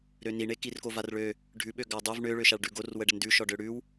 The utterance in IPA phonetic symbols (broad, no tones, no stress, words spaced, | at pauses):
ɾøniɳe kirkovarɭø | ɖʱʉ ɓøɡadˤøv ɳøɭø ʃaɭɖʉɡor wəɖəndʉ ʃɔɖøɽʉw